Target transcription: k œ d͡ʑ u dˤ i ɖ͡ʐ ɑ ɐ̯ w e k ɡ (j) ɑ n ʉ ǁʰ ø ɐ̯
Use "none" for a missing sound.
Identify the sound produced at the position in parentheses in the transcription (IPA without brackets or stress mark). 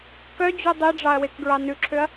ɹ